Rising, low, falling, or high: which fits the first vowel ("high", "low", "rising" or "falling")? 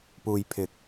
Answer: low